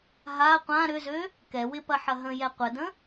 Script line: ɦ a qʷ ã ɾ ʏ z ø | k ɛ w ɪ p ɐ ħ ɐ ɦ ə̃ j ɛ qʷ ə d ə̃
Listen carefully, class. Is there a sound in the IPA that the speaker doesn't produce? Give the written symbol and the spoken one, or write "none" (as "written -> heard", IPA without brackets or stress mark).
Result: none